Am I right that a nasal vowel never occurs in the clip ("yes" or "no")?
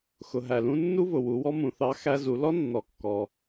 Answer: no